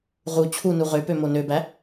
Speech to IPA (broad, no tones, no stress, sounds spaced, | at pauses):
ʁ u t͡ɕʰ u n u ʁ ø p ø m o n ø b æ